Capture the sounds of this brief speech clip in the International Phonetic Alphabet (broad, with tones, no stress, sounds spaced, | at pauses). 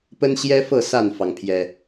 p ə˦ n ɕ j ɛ˦ f ɤ˥˨ s a˥˨ n f ɑ˩ ŋ pʰ j ɛ˨˩